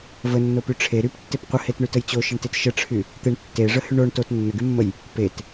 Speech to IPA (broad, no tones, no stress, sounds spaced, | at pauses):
v ə nː o p y ʈ͡ʂʰ e ɾ y p tː e p qʷ ə h e t ɳ y t ə j t͡ɕ o ʃ ə ɳ t e t ʃ ə ʈ͡ʂʰ y | t̪ e ɳ tː e ʐ ə h y ɳ o ɳ t o t nː ə ɡ y mː ə j | p e t